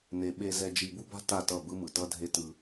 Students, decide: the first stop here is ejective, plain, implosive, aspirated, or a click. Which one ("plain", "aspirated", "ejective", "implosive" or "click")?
implosive